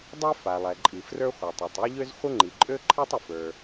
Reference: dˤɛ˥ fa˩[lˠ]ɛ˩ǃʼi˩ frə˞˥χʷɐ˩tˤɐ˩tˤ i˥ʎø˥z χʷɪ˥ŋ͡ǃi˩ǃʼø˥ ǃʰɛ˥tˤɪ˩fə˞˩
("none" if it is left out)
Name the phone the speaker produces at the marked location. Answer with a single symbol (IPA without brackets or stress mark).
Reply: lˠ